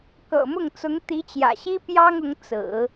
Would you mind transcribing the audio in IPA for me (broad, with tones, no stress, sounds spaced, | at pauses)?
k ɤ̰˨˩ m ʊ˥˩ ŋ t͡s ʊ˧˥ ŋ t̪ i˧˥ t͡ɕ j ä̰˨˩ ɕ i˥ p j ɑ˥ ŋ ʊ˧˥ ŋ t͡s ɹ̩˨˩˦